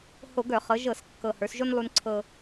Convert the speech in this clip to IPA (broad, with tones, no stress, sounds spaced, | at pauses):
h o˧˩˧ ɡ œ˧˩˧ χ ɤ˩˧ ʒ ɤ˧˩˧ s kː ɤ˨˩ h ə˞˩˧ s ʒ o˦ n lˠ u˦ n ǀʰ ɤ˦